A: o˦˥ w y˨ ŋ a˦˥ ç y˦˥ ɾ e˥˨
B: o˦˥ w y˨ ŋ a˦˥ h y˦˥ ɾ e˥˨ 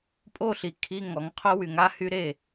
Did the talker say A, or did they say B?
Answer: B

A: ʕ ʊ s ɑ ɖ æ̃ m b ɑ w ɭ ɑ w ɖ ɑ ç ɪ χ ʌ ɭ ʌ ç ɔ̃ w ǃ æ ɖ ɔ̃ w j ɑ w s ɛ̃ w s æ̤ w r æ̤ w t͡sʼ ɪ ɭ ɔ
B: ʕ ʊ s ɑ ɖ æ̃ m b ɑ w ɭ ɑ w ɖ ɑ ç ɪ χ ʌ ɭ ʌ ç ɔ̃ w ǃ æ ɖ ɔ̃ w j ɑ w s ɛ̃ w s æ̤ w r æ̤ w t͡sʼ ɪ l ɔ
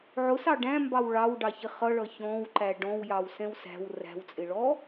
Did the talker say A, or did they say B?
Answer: A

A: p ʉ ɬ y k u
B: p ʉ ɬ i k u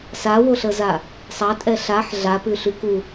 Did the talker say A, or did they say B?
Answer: A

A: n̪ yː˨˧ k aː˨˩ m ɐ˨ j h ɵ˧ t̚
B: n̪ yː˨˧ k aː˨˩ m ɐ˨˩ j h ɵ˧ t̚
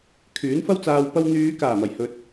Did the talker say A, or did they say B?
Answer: B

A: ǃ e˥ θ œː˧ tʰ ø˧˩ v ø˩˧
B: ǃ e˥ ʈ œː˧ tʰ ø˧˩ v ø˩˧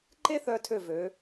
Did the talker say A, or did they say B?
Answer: A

